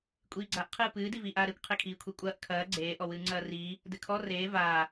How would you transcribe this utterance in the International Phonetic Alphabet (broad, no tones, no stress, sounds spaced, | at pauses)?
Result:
kʷʼ iː ɡ͡ǀ a ʔ qʰ ɨː p ɨː d i v iː ʔ aː ɾ e kʷ qʰ e kʰ iː kʷʰ e kʷʼ ɐː ʔ kʰ ɐː ɡ͡ǀ eː ʔ ɔ w ɨː ŋ͡ǀ ɐː r iː | d ɘ kʰ ɔ r eː v aː